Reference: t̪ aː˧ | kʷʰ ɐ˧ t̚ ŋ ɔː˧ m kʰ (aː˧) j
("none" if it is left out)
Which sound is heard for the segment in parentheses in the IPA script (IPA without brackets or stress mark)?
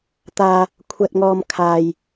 aː˧